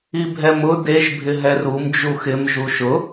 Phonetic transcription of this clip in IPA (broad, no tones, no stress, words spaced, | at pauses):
ibʱɛmʊ deʒ bʱɪɦɛrum d͡ʒuxɪm ʒuʃʊ